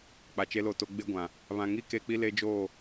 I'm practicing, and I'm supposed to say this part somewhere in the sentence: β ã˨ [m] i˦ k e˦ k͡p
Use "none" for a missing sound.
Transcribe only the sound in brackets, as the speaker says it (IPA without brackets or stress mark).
ŋ